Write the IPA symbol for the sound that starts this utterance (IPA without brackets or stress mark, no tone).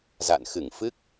z